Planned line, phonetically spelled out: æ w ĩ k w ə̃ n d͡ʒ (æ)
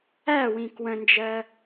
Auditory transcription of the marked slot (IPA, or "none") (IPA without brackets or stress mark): ɜ